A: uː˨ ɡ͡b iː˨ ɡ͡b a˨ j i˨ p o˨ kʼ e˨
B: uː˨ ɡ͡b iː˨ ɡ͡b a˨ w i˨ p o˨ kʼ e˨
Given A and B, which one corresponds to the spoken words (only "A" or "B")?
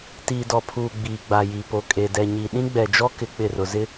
A